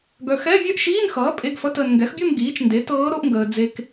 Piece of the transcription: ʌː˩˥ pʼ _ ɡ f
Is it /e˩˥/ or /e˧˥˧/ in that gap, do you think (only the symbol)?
e˧˥˧